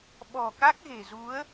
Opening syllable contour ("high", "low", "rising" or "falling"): low